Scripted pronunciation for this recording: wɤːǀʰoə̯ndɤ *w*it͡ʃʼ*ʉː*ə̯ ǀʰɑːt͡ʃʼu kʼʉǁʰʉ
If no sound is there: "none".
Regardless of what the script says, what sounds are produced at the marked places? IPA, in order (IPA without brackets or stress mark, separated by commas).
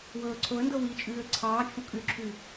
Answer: w, ʉː